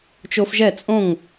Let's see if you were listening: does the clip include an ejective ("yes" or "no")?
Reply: yes